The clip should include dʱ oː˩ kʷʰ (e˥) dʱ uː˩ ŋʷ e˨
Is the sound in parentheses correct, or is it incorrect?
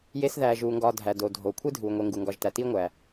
correct